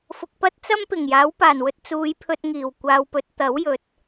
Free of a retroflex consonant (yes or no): yes